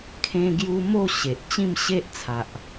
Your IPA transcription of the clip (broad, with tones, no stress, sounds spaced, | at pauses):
kʰ ẽ˦ ɡ j u˦ m o˥˧ ɕ e˨ ʔ t͡ɕ ĩ˥˧ m ɕ e˦ ʔ t͡sʰ a˨ ʔ